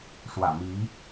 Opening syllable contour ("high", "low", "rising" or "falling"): low